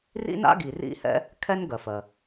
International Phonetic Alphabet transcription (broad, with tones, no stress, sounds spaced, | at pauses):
r ḭ˥ n a̰˥ ɡ i˩ r ḭ˥ h ɛ̰˥ | kʰ ɛ˥ n ɡ ɜ˩ f ɜ˩